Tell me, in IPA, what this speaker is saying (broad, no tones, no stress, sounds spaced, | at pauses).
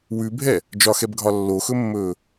w ʉ bʱ ɛ | d͡ʒ ɒ x ɛ b ɡʱ ɒ lː o x ɵ mː ɵː